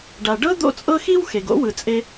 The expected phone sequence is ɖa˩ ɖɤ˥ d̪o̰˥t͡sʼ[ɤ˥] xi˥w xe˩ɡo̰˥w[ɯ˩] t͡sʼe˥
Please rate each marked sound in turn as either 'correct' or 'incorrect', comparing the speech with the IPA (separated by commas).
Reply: correct, correct